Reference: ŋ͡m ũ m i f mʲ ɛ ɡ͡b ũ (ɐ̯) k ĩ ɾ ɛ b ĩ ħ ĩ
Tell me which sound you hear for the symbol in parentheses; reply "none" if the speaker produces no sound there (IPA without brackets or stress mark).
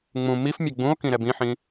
o̯